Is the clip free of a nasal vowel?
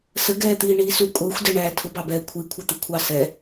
yes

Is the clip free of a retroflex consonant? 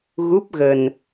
yes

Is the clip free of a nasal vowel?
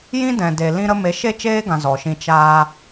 no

